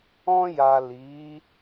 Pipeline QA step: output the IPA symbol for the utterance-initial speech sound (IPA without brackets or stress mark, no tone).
ɔ̃